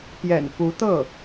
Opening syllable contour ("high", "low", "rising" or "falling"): low